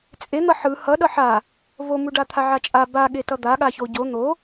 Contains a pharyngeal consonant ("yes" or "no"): yes